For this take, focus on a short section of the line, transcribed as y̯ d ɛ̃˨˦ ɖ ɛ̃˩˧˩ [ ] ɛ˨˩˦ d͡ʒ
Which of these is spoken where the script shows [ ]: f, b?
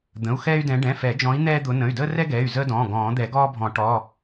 f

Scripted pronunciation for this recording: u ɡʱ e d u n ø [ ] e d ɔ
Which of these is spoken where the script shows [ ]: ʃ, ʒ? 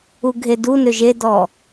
ʒ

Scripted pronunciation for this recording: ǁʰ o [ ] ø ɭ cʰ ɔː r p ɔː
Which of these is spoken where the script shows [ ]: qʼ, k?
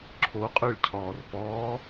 qʼ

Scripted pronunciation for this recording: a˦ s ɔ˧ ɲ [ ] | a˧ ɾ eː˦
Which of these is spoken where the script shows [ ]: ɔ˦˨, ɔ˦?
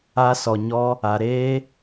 ɔ˦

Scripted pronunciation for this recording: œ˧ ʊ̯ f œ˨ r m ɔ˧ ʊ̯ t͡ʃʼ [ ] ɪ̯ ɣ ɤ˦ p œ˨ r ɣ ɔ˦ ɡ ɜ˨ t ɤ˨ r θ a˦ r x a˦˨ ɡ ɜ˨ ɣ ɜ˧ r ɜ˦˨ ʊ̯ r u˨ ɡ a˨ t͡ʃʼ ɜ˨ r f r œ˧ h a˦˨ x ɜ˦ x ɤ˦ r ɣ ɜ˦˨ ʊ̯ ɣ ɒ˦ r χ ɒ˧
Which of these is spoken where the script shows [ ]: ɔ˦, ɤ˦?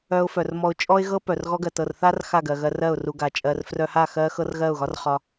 ɔ˦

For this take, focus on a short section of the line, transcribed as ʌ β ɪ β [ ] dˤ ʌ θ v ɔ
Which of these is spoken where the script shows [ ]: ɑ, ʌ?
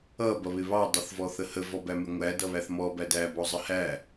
ɑ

